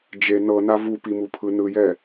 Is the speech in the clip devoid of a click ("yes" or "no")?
yes